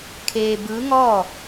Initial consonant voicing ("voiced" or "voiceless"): voiceless